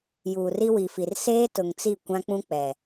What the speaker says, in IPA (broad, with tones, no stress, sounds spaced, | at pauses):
j uː˨ r i˦ w i˨ f i˨ r s eː˦ t ʊ˨ ŋ t͡s i˦˨ kʷ ã˦ k͡p ũ˦ k͡p ɛ˨